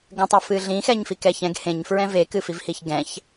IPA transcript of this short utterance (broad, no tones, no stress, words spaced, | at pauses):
ɡə̃tˤɛfɨ ɮĩxɛɲfikɛ çɛ̃ɡ hẽɲfɹɛ̃ vekɨfivhiç ɡɛ̃ç